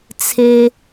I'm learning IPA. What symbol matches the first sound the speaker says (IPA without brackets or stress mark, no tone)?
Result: t͡sʰ